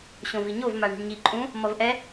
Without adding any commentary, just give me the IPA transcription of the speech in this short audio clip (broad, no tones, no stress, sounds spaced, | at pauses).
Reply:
ɕ õ v i ɲ o v m a ɳ i̤ ɳ ɲ i ǃʼ ũ | m ʌ v ʔ ɛ